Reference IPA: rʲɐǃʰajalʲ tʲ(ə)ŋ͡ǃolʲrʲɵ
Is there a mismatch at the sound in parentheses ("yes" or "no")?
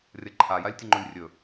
no